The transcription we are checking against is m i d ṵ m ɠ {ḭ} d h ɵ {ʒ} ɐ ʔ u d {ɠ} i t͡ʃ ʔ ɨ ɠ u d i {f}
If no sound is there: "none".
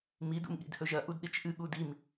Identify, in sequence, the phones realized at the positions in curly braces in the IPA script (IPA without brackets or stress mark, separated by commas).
ḭ, ʒ, ɗ, m